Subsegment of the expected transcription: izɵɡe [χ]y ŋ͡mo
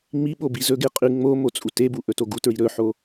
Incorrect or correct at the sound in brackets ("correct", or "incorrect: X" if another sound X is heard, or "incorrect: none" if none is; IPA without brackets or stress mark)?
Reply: incorrect: qʼ